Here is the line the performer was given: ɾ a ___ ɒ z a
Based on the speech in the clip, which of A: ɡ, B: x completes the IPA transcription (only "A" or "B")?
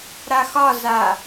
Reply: B